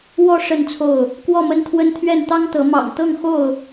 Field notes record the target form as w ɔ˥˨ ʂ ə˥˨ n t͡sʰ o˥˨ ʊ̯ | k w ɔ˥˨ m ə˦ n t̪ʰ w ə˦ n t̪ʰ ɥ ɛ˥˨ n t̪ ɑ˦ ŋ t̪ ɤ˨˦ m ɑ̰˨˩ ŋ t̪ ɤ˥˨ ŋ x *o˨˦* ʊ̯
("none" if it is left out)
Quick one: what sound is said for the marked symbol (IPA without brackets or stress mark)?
o˥˨